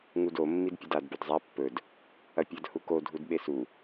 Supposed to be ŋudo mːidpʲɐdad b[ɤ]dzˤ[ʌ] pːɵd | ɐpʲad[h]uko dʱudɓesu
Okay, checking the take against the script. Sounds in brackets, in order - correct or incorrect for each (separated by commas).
incorrect, incorrect, correct